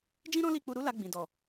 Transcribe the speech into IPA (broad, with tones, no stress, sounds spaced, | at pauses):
d͡ʒ ĩ˦ ɾ ɔ̃˦ l i˦˨ k͡p u˧ ɾ u˦ l a˧ ɡ͡b ĩ˨ d ɔ˨